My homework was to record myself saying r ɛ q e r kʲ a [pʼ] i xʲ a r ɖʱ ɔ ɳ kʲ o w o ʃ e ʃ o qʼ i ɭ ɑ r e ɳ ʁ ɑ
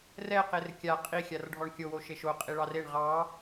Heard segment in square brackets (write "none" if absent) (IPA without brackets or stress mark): qʼ